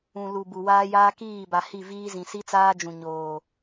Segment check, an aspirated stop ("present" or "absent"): absent